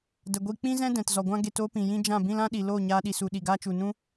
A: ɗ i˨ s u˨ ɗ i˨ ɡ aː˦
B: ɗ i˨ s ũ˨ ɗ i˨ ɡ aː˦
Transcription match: A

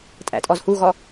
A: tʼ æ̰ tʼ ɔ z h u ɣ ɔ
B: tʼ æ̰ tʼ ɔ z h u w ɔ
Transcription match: A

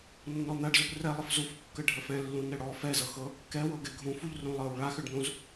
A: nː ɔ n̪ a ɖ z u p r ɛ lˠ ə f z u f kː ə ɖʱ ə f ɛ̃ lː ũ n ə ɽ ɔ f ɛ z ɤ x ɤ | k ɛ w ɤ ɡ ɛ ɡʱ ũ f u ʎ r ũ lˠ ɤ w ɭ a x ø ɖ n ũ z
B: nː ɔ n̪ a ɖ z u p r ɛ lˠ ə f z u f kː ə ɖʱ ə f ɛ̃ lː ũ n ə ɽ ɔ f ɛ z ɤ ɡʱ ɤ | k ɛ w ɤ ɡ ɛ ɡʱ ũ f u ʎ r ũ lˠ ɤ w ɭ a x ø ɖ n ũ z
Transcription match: A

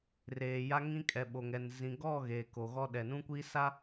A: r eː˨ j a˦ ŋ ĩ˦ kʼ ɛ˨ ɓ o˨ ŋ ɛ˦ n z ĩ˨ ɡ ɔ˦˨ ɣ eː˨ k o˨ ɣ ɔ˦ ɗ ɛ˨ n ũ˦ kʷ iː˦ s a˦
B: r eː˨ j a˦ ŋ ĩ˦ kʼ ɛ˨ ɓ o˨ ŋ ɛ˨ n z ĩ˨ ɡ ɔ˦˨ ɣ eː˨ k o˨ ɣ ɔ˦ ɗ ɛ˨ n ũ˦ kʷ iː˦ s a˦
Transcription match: B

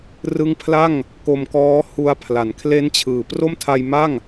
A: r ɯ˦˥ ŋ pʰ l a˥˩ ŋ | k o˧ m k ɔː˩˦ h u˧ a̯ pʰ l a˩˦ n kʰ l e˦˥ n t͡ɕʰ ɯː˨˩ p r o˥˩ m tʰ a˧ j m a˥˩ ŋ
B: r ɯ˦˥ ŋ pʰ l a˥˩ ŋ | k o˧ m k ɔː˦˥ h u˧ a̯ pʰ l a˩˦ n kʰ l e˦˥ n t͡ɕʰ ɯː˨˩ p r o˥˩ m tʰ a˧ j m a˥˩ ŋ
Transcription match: B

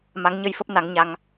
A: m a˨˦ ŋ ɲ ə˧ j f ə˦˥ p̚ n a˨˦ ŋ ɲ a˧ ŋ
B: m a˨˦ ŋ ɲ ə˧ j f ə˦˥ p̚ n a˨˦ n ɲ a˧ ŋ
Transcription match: A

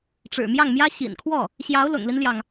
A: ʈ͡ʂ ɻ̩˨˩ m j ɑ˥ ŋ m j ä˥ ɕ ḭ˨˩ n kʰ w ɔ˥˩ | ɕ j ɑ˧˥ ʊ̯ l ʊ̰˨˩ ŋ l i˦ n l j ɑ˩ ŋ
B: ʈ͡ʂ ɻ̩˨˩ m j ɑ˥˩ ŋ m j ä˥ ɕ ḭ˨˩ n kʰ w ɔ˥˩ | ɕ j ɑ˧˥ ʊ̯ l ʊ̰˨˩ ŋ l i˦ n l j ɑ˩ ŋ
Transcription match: B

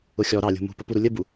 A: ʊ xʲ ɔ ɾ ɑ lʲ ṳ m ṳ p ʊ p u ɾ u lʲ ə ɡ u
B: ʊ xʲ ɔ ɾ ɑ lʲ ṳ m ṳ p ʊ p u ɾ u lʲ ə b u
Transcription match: B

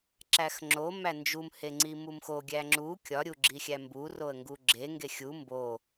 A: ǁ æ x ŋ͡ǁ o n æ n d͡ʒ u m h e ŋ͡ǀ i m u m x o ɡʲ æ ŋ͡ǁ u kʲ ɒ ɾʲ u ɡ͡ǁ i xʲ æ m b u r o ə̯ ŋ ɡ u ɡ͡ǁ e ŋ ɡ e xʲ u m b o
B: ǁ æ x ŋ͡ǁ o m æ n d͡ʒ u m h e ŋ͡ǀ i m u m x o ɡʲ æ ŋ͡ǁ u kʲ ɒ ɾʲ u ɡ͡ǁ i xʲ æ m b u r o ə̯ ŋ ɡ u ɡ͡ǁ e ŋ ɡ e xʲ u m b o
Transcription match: B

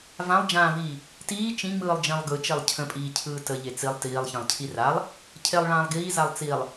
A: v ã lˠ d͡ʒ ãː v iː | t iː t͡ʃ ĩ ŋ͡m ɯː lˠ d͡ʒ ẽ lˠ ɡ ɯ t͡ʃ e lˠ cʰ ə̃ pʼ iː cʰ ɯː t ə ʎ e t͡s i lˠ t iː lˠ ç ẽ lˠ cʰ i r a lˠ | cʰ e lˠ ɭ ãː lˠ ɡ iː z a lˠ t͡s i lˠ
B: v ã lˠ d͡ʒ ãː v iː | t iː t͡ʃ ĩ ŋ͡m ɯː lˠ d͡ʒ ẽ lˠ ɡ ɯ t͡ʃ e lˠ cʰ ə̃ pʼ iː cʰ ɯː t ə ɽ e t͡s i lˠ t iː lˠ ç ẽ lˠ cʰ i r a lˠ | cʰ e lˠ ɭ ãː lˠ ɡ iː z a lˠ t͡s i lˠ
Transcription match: A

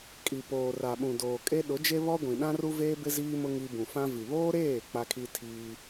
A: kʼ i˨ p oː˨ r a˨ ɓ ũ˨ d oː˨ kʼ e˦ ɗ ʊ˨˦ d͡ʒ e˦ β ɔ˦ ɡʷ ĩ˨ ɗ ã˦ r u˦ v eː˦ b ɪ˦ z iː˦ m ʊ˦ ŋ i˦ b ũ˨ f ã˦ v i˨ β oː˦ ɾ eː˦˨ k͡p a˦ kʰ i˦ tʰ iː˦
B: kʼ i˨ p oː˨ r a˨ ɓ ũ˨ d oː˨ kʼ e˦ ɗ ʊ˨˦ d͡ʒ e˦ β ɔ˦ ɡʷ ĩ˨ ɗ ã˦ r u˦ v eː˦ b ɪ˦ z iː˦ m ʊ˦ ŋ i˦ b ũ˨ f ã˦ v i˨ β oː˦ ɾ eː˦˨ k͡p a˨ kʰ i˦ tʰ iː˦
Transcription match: A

